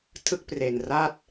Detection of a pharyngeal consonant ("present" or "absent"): absent